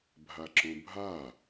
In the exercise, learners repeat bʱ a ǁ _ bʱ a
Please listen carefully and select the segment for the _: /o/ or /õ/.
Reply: õ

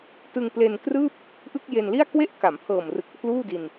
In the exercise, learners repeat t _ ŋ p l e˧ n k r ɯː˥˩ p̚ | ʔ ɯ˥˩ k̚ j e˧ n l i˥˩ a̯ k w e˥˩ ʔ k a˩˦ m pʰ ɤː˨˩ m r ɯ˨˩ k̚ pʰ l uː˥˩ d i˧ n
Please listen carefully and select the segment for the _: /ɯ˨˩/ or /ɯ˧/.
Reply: ɯ˧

